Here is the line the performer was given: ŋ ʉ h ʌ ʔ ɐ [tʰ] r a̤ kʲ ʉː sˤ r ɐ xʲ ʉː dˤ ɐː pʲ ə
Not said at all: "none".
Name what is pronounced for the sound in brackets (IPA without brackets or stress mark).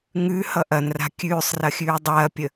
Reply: n